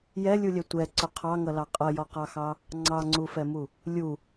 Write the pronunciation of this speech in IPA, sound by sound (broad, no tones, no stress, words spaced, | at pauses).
jɛlʲulʲɛ tʷɛǀʊ qʰɑŋʌlɑ qʼʌjɔqɑxɑ | ŋ͡ǀɑŋ͡ǀufɛmu | lʲu